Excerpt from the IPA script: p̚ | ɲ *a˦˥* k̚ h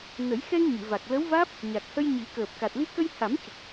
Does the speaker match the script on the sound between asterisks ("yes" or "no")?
no